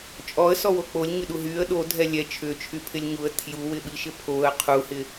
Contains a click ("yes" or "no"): no